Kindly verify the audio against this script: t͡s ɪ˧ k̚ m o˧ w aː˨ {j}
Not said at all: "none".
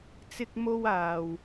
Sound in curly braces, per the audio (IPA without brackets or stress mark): w